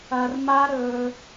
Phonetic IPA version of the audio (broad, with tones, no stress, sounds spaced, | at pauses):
ɐ˧ r m a˦ ɾ ɵ˧